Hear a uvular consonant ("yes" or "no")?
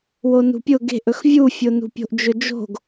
no